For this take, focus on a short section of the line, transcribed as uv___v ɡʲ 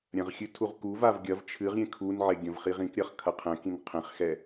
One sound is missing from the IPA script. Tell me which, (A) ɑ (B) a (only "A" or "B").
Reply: B